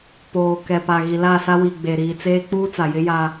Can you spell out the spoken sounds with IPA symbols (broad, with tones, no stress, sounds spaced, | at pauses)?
p oː˨ k ɛ˨ p a˨ ɣ i˨ l a˦˨ s a˦ w i˨ ɡ͡b e˨ ɾ iː˨ t͡s eː˦ k͡p uː˦ t͡s a˨ j ɪ˦ j a˦